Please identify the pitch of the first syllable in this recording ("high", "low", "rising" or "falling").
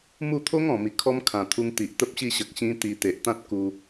falling